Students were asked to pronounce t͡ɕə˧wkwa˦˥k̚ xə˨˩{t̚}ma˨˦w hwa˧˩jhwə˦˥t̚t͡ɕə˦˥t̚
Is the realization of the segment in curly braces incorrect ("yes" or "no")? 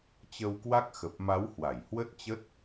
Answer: yes